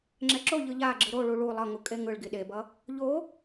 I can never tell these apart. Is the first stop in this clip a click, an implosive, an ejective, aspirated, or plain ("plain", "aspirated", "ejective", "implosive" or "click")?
click